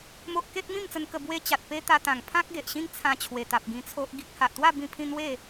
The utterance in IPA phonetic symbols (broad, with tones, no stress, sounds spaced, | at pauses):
m o˦ ʔ k e˦ t̚ m ĩ˥˧ m t͡s ə˧ n k ə˧ b w e˦ t͡ɕ a˨ t̚ p e˦ t̪ a˧ t̪ ã˨˩ ŋ pʰ ã˦ k̚ ɡ e˨ ʔ ɕ ĩ˦ ŋ t͡sʰ ã˧ t͡ɕʰ w e˨˩ t̪ a˨ p̚ ɡ ĩ˧ t͡sʰ o˦ ʔ ɡ i˦ k̚ h a˨ ʔ t̪ w a˥˧ b ĩ˧ pʰ ĩ˧ n̪ w e˥˧